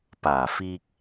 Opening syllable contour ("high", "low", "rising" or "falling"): low